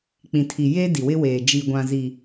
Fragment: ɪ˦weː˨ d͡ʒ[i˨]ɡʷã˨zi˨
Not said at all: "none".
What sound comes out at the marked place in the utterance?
i˨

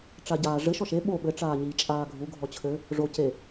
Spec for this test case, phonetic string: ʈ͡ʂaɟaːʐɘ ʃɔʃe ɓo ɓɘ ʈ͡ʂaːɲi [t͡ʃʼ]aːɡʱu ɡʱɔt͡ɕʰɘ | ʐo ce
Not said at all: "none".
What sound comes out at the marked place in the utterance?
t͡ʃʼ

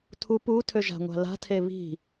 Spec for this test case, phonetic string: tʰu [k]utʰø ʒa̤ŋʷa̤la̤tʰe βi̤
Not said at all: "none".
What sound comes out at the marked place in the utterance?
p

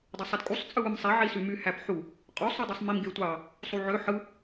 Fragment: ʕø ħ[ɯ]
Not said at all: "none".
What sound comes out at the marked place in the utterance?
ɯ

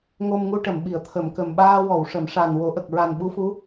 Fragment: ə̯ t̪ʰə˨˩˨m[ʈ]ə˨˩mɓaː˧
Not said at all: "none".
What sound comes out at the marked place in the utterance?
k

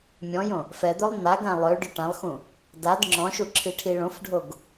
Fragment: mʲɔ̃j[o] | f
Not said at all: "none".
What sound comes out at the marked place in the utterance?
õ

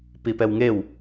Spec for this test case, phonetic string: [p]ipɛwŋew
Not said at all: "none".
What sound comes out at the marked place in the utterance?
p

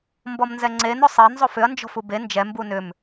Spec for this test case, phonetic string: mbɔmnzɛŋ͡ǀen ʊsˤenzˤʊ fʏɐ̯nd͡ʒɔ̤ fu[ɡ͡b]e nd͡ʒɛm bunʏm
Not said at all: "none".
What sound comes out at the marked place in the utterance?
b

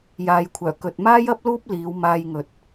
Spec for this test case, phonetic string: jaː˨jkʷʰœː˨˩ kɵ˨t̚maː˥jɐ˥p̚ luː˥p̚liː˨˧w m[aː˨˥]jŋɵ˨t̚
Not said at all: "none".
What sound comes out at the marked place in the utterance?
aː˧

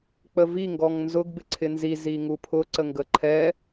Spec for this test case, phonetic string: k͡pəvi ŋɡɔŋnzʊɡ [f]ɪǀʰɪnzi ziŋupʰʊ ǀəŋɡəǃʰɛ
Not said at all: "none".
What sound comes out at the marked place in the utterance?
b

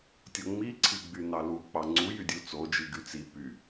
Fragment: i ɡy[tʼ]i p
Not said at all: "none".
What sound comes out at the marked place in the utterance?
t͡s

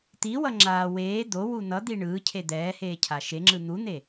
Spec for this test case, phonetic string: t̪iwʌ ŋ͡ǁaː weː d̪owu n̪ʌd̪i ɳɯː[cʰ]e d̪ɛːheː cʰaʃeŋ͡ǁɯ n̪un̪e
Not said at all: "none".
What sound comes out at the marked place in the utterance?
cʰ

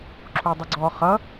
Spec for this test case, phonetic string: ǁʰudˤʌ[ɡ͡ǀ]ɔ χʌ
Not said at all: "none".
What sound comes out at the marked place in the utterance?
ɡ͡ǀ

